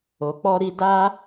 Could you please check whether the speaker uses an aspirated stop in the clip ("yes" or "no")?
no